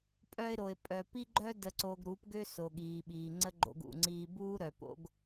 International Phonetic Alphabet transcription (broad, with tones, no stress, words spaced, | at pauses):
pʼœ˧ɪ̯ɾo˨ɪ̯pʼœ˨ pi˦ɡ͡ǃœ˦ də˧ǀo˧ɡɾu˨˦p ɡø˦ so˨ɠiː˨ɓiː˨ŋ͡ǀə˦ ɡ͡ǃo̰˧ɡṵ˨ŋ͡ǀiː˧ buː˦ɾœ˨ po̰˦ɡ